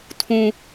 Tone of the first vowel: low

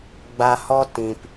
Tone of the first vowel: low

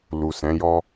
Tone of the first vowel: low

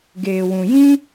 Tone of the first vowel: low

